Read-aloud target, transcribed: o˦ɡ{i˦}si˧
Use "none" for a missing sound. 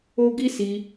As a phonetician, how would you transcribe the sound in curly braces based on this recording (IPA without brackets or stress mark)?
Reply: i˦